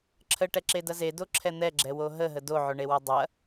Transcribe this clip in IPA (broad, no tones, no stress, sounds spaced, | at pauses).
ǁʰ ə ʈ ɛ ǁ e d ɐ z e d o ǁʰ ɛ n̪ ɛ ɡ͡ǁ ɛ w o ɦ ə ɦ ə d o ʕ o ɳ e w ɐ dˤ ɐ